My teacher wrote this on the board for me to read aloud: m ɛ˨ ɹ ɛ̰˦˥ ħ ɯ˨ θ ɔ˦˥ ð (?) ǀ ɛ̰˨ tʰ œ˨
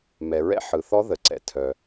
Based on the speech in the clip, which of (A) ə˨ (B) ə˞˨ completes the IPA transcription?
A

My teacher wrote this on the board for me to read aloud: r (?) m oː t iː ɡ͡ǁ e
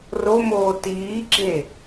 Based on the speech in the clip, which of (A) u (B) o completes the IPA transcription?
B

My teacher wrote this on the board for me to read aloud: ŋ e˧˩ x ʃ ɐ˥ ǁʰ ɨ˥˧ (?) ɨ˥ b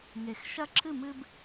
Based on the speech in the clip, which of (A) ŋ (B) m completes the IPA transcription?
B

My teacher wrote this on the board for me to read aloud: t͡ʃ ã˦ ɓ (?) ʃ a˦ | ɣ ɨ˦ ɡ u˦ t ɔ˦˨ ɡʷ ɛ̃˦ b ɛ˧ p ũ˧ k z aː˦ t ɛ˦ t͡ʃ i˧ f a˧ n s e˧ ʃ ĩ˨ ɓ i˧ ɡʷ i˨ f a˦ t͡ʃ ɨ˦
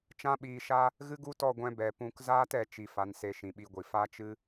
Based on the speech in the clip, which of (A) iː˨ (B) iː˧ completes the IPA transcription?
B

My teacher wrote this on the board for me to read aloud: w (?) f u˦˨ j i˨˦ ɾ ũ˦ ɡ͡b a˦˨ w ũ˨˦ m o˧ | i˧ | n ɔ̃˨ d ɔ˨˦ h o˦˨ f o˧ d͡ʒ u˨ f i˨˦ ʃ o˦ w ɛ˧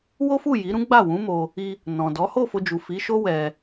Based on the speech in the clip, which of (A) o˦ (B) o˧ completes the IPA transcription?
A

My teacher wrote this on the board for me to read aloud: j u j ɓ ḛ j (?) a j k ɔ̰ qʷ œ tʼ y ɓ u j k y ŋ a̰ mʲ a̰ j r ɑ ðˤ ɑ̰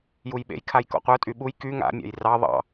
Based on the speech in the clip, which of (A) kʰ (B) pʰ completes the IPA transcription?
A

